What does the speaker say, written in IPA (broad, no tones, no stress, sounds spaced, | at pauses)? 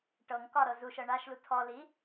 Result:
ʈ ɤ ŋ k ɒ ɾ ɤ z u ʃ ɤ ɳ a ʃ l u tʰ ɔ l i